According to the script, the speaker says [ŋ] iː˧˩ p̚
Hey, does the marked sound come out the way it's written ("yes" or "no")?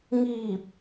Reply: yes